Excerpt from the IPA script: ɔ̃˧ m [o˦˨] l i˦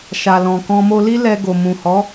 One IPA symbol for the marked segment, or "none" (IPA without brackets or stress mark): o˧